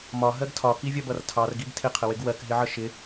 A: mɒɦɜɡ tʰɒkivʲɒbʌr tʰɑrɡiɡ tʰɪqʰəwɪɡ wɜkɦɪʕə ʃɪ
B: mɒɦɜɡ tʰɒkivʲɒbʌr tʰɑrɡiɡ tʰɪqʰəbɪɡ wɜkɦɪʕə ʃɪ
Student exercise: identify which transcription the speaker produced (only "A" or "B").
A